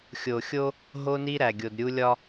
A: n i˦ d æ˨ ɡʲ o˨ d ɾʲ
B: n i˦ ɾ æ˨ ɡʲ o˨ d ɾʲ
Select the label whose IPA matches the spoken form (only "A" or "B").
B